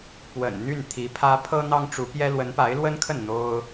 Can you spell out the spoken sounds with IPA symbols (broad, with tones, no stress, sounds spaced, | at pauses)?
p w ə̰˨˩ n n̪ y˥˩ n t̪ʰ i˧˥ pʰ ä˥ pʰ ɤ˥ n̪ ɑ˥ ŋ ʈ͡ʂ u˧˥ p j ɛ˥ l w ə˧˥ n p a˧˥ ɪ̯ l w ə˥ n kʰ ə˥˩ n n̪ o˥ ʊ̯